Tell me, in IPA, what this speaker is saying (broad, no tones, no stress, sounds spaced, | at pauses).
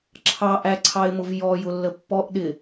ǁʰ ɑ ʔ æ ǀʰ ɑ ɪ̯ m ʊ v j ɔ j ʊ lː ə pː ɔ ʔ ɗ ɪ